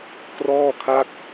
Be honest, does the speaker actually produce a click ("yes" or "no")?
no